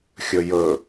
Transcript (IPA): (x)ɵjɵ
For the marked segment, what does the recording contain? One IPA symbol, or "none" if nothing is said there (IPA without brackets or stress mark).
xʲ